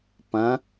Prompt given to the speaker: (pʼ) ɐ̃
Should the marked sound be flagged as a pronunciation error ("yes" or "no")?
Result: yes